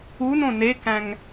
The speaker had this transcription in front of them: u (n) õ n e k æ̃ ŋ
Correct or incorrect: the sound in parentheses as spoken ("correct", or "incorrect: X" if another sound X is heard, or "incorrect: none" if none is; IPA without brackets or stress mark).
correct